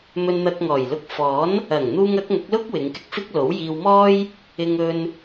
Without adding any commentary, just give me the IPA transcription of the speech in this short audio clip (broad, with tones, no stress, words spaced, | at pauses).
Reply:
mɵ˧nn̪ɐ˧k̚ŋɔː˨˩jlʊ˧k̚ fɔː˨˥n | ɐ˨˩ŋn̪uː˧ŋ ɐ˨˥k̚ŋɐ˨˥k̚lʊ˥k̚ wɪ˨˧ŋkɪ˧k̚fɪ˥k̚lo˨˥w jiː˧wmɔː˥j | ɪ˧ŋɵ˧n